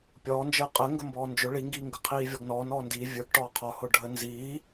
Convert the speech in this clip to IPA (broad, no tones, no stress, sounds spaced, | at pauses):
pʲ ɔː n d͡ʒ əː qʼ ə ŋ ɡ ə m b ɔː n d͡ʒ ʊ ɭ i ŋ ɡ iː ŋ ɡ ə qʰ iː vʲ ɔ ɡ n ɔː n ɔː n d iː vʲ ə˞ ɡ ʈ ɔː qʰ ɔ h ʊ ɖʱ ə n z iː